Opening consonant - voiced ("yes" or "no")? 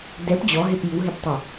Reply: yes